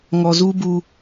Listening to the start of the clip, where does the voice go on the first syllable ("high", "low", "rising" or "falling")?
low